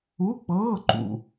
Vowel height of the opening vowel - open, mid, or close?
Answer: close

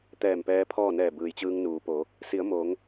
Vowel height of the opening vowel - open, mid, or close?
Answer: mid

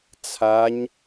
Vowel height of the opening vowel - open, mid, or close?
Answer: open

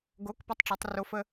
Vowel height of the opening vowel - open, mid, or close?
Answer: mid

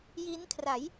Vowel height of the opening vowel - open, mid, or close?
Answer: close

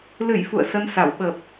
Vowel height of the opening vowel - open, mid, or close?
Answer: close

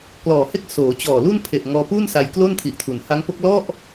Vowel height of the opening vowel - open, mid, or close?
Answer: mid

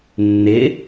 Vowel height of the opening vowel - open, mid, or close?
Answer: close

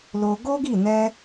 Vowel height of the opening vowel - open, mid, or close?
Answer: mid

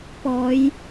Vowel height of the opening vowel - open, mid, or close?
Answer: mid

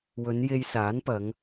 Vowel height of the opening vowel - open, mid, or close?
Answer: mid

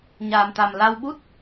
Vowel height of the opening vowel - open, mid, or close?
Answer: open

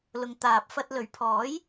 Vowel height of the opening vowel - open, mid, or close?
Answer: close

